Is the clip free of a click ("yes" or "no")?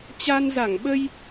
yes